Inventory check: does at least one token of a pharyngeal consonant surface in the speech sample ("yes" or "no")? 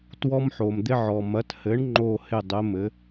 yes